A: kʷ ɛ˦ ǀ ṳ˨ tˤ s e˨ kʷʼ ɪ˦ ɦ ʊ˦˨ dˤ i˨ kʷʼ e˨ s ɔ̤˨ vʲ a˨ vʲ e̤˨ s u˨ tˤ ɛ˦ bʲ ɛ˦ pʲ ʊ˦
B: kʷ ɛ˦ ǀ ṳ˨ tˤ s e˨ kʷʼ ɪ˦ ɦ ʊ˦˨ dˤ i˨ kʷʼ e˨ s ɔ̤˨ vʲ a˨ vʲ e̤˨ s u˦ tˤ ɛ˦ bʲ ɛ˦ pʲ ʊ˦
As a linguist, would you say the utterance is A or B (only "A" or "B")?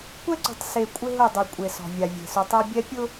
A